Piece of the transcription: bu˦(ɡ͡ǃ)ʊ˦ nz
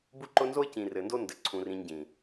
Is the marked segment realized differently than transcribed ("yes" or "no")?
yes